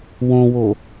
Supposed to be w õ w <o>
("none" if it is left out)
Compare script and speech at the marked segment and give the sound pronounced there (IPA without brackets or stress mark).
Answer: o